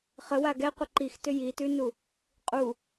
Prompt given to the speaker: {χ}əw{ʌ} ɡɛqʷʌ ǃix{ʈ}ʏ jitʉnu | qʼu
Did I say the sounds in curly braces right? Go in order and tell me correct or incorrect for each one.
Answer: correct, incorrect: a, incorrect: t

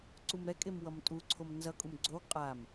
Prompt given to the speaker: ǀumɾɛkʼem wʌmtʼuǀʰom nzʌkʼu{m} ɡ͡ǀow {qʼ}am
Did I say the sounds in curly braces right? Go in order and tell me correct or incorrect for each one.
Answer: correct, correct

